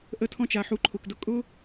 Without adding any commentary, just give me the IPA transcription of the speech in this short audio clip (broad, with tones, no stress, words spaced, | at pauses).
ʔə˧tʰɔ̃˧t͡ʃa˨ħu˨˦ ǃʰʊ˨kdʊ˧ kʼʊ˦